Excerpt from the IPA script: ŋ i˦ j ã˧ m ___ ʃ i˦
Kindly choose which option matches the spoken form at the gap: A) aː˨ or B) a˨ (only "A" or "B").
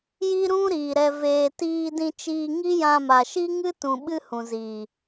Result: B